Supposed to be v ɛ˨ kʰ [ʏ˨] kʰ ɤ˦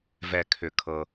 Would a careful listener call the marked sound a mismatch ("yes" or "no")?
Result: no